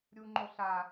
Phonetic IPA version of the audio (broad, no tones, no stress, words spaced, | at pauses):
ɾʲu ŋ͡ǃoɬa